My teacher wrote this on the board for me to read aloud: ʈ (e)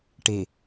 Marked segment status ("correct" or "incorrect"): correct